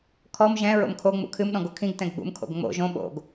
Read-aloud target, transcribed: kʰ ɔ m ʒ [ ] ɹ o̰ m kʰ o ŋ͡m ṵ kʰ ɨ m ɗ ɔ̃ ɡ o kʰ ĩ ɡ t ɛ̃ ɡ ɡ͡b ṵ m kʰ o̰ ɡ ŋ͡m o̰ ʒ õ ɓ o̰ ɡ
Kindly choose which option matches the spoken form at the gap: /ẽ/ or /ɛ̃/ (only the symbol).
ɛ̃